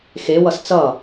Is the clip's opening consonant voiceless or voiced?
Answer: voiceless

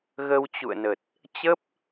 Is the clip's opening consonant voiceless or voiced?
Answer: voiced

